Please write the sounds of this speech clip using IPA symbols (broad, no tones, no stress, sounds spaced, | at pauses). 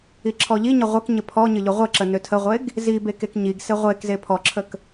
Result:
i ǁʰ ɔ ʎ i ɲ ə ʁʷ ə k ɲ ə pʰ ɔ ɲ ə ʎ ʊ ʁʷ ə ǁ ə n ø tʰ ə ʁʷ e ɡ | z i b e k e k ɲ i ɡ s e ʁʷ e k z e pʰ ɔ ǁʰ ə k